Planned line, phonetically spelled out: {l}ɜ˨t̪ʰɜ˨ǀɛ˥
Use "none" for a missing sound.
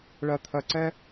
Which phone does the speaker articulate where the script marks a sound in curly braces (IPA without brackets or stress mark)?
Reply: ɭ